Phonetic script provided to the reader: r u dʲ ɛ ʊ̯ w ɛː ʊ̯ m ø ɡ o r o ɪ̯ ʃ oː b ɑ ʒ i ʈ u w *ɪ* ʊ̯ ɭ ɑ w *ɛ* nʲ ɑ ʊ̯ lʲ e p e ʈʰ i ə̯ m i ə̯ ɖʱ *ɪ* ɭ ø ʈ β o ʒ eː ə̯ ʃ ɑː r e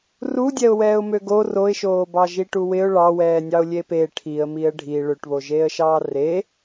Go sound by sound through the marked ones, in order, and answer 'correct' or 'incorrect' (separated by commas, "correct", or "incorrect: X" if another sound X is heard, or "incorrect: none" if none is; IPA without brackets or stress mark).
correct, incorrect: ɛː, incorrect: i